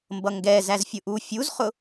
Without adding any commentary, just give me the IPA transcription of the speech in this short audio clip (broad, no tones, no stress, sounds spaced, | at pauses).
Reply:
m b ʌ ŋ ɡ ɛ z æ z fʲ ʊ ʔ u fʲ u z χ ʊ